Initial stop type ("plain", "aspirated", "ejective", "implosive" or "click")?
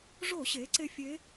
click